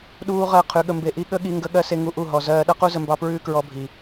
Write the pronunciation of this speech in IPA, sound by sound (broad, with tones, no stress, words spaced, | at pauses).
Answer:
ɗuː˦ʁɜ˦˨ qʰʉ˨˦ɠə˧mbe˧ʔi˦ ɠə˦ɠi˧ ŋɡə˦ ɠɜ˦se˦ ŋu˧ʔu˦˨ ɦɔ˨zɜː˧ ɗʌ˦qu˦zə˧mbɑ˧ pɹʉː˦kɹɔ˧bʱi˨